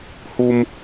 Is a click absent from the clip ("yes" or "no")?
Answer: yes